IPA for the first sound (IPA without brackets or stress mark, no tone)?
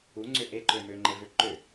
u